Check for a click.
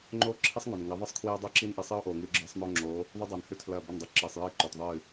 present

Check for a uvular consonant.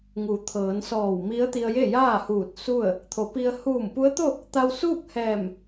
absent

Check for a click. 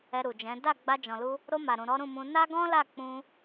absent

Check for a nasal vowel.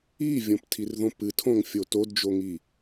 present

